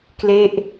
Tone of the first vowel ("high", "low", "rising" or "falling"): falling